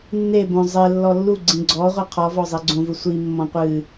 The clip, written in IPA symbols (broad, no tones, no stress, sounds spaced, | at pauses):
nː e b õ zˤ e lː ɔ lː u ɡ͡ǀ ĩ ɡ͡ǀ ɔ ʁʷ i qʰ ɔ v ɔ zˤ i ɡ͡ǀ õ v u sʷ i mː ɔ̃ qʷ ɨ